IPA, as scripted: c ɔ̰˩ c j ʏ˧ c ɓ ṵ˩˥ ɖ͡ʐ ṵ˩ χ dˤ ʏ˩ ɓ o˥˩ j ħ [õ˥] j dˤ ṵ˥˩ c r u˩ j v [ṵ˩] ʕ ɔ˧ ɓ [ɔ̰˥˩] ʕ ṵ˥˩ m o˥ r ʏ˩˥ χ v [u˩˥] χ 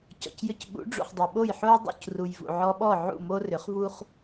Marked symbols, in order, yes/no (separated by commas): no, yes, no, no